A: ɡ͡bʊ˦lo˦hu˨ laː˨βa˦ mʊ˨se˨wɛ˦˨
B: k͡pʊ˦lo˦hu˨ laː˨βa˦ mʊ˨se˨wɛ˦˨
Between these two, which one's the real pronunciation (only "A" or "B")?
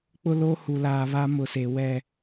B